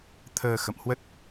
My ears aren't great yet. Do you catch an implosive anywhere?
no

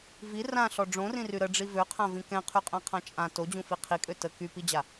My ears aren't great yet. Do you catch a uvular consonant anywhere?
yes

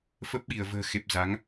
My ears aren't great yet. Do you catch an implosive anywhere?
yes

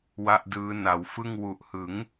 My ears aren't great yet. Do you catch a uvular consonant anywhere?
no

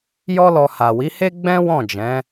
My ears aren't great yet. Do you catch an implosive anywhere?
no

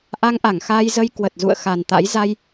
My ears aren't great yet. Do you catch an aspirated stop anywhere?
no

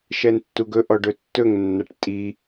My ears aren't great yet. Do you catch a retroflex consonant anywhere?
yes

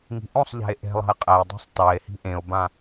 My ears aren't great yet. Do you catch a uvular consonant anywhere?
yes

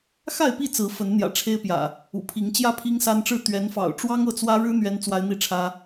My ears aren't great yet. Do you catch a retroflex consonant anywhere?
yes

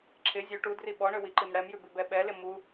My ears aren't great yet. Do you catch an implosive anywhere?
yes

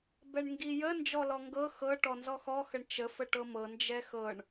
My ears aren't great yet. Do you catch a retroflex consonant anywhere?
yes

